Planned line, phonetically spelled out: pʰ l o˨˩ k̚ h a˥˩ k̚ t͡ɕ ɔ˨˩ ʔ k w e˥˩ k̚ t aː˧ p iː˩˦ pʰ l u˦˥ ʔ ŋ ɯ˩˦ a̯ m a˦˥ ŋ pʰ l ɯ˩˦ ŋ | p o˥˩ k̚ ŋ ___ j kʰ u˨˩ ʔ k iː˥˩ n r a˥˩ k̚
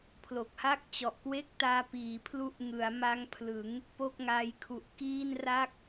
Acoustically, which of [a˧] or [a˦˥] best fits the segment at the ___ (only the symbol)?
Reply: a˦˥